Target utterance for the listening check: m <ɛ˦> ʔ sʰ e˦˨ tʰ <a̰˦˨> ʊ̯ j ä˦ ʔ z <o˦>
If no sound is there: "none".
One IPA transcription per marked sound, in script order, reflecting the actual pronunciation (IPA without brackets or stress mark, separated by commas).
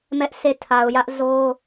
ɛ˦, a˨, o˦